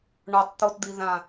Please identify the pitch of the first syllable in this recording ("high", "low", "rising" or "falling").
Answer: low